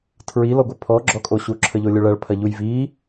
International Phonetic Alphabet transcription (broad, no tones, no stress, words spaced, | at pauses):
tʰɹi lɔɡʷɐpʰɔ ɡ͡ǁɔkʼoɕu ǁʰəʎolʲoɭɐɭ pʰɐʎujvi